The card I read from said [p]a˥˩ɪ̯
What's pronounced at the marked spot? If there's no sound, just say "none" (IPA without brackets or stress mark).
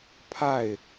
pʰ